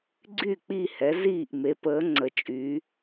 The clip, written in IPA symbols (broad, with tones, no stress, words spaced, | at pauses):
ɡ͡ǀy˥˨k͡pi˥˨hɛ˨˦ ziː˥˨ʔme˨˦pəː˨˦ ŋ͡ǀə˨˦t͡ʃʼy˨˦